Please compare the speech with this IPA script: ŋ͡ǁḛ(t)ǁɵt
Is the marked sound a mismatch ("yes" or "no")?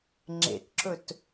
no